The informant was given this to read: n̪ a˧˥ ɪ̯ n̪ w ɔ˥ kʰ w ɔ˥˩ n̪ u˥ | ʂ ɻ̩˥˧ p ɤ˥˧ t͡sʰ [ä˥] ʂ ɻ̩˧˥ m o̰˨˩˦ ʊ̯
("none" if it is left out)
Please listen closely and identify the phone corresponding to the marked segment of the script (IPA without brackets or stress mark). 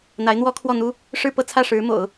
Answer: ä˥˩